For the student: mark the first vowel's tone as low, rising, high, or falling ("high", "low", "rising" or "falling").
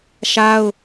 high